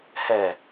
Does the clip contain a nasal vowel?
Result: no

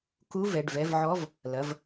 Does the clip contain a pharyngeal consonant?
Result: yes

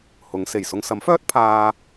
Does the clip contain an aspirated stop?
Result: yes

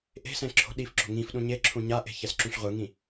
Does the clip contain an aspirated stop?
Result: yes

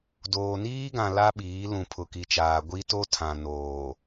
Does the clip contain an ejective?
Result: no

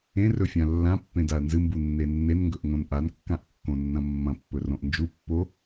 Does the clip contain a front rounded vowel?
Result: no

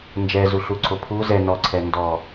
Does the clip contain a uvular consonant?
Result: no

